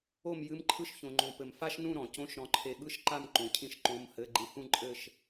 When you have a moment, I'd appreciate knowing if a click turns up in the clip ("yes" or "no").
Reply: yes